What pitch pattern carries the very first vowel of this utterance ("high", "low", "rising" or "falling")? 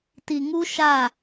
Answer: low